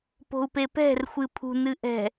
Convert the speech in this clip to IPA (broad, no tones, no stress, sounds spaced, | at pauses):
p o̤ u̯ p e p ɛ̤ r xʷ ɨ pʰ ṳ n ɨ ʔ ɛ̤